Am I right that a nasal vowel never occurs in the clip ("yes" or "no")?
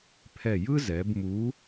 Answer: yes